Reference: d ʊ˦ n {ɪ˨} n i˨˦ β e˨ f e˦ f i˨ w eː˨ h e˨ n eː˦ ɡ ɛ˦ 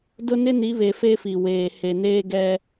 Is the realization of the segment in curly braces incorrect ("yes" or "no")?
yes